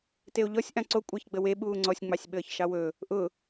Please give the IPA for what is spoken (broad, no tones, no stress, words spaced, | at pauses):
teo̯ʎɔsʲ ʔãǀo kʷʼaçɡ͡bəwe ɓuːŋ͡ǀɔsʲ ŋ͡mɑsʲɓəːçʃɑwɵ | ʔʊ